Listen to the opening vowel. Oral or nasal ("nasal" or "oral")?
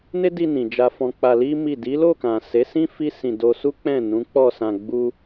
oral